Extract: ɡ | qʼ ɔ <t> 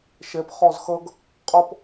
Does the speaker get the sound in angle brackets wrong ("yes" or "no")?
yes